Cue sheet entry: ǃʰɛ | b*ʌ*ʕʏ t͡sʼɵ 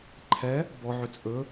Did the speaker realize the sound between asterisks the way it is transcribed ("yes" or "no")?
no